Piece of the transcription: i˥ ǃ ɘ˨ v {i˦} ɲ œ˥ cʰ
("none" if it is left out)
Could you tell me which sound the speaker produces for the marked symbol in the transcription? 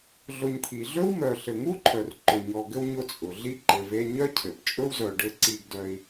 e˦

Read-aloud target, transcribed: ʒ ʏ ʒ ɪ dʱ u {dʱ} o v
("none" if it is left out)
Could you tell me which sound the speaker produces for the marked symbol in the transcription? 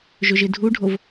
ɖʱ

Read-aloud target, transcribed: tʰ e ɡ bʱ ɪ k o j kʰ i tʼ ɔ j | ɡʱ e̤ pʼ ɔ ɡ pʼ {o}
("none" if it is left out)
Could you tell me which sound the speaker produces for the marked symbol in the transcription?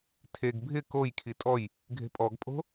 o̤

